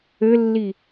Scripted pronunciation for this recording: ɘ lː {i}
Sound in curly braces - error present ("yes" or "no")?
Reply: no